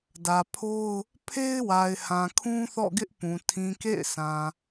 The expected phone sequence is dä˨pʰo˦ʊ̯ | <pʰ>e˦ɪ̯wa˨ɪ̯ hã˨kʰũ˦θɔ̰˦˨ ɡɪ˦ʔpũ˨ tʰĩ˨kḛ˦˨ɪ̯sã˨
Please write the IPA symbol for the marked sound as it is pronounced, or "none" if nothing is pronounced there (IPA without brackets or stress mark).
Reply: pʰ